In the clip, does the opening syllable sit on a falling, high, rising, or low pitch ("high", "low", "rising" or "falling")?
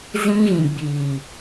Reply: high